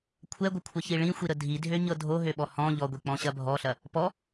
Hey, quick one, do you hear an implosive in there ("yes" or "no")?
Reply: yes